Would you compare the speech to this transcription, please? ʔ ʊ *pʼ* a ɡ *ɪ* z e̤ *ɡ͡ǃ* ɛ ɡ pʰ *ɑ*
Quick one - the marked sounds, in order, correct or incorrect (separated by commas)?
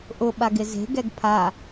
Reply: incorrect, correct, incorrect, incorrect